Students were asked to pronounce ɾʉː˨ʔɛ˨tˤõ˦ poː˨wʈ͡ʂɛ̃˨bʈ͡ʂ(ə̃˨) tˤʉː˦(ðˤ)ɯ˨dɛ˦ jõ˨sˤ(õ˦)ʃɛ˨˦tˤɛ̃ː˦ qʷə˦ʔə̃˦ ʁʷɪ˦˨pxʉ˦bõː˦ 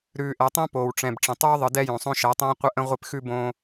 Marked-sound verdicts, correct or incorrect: correct, correct, correct

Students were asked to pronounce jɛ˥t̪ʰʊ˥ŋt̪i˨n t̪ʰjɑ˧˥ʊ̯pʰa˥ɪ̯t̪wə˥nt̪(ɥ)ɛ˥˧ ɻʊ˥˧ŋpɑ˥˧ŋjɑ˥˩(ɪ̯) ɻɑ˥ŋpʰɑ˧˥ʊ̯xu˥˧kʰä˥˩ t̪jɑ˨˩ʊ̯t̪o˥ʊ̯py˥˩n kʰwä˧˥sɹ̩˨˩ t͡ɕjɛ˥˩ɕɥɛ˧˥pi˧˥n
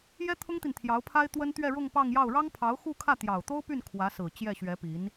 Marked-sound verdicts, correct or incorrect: correct, incorrect: ʊ̯

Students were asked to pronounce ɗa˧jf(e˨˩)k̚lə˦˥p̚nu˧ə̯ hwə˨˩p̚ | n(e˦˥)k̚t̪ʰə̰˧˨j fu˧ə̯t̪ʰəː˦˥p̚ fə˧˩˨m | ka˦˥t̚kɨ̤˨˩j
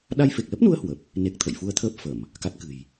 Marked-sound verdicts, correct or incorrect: correct, correct

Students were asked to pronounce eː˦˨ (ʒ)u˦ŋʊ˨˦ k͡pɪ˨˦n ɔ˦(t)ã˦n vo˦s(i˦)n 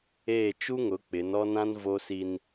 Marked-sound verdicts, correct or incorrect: incorrect: t͡ʃ, incorrect: n, correct

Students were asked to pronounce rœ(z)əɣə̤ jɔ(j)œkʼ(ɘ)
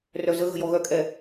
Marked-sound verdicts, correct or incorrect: correct, incorrect: ɣ, incorrect: ɛ

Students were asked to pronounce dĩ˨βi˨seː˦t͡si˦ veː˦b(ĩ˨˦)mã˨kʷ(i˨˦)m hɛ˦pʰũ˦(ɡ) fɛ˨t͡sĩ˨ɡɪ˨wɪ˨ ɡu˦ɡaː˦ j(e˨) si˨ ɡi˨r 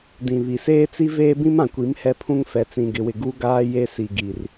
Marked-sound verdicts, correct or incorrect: incorrect: ĩ˦, correct, incorrect: ŋ, incorrect: e˦

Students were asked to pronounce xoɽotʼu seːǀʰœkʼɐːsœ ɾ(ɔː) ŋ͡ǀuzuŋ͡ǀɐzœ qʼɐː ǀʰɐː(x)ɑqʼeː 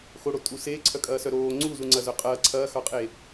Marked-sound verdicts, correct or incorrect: incorrect: oː, correct

